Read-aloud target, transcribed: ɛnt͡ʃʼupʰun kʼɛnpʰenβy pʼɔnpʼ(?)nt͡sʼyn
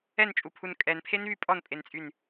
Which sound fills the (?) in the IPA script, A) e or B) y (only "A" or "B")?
A